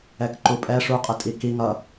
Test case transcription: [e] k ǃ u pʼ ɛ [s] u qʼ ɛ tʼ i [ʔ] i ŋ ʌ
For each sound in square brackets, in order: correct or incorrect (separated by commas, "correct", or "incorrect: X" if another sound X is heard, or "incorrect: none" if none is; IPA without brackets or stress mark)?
incorrect: ɛ, incorrect: ʂ, incorrect: k